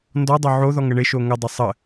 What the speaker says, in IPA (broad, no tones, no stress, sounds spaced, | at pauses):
n d ɔ dˤ o ʕ o ð ɔ ŋ ə ɳ ɪ ʃ o ŋ ə dˤ ɪ sˤ ə